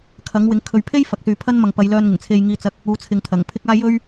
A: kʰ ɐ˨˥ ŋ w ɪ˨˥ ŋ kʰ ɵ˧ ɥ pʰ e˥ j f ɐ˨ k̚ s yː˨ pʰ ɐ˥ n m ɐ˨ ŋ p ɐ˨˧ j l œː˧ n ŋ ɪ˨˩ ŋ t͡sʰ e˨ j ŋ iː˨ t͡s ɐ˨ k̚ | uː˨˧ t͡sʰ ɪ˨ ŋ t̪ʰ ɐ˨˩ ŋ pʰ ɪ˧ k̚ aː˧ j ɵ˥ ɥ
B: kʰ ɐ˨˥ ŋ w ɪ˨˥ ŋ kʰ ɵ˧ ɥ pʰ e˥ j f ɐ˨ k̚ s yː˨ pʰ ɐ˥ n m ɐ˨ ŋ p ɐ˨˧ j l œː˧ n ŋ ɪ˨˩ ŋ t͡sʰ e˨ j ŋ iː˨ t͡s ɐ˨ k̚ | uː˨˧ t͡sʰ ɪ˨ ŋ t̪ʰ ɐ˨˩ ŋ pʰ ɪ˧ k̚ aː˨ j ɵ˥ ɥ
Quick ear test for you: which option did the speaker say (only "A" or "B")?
A